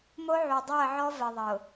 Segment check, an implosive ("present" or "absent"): absent